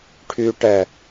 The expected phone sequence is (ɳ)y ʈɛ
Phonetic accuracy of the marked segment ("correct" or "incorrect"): incorrect